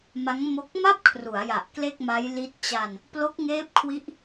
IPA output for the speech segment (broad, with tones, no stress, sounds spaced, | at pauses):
m a˦˥ ŋ m o˦˥ k̚ m a˥˩ p̚ kʰ r u˩˦ a̯ j a˨˩ ʔ k l e˥˩ k̚ m a˦˥ j l i˦˥ t̚ t͡ɕ a˧ n | p l o˦˥ k̚ ŋ eː˦˥ p̚ kʰ w i˦˥ ʔ